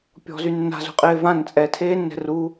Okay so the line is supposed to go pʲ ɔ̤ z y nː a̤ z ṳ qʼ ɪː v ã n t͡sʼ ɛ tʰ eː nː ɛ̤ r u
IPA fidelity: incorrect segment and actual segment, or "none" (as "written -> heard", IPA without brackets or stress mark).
none